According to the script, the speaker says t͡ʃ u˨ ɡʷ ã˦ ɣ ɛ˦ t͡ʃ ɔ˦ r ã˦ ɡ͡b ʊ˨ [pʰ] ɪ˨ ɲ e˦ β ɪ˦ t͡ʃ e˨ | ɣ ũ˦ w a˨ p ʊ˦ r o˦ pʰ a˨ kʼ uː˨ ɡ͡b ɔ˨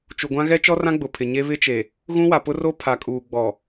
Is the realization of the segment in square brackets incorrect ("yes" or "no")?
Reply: no